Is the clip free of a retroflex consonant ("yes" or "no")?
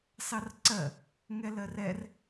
yes